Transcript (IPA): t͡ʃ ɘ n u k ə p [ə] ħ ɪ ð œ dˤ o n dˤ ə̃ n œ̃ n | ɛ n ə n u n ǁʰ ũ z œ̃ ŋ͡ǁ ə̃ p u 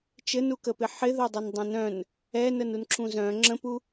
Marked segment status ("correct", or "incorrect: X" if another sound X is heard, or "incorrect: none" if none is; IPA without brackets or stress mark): incorrect: ɪ